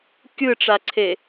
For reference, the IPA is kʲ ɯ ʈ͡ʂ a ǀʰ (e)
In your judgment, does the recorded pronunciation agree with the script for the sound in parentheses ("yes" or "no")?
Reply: yes